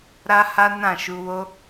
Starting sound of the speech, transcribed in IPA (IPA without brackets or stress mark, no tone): ɾ